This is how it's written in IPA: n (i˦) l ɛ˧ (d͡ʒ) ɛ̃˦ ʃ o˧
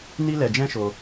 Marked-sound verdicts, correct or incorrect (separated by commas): correct, correct